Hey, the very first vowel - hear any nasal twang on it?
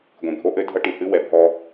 yes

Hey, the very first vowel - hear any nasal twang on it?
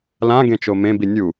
yes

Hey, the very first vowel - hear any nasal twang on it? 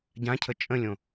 yes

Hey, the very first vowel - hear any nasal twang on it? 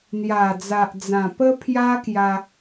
no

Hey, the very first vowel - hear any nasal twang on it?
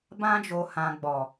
yes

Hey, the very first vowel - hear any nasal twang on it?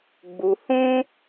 no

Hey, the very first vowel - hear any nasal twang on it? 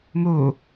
no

